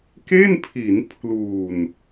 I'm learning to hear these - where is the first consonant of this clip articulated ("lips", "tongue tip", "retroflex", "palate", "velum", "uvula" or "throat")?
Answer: velum